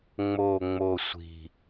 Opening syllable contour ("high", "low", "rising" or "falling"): low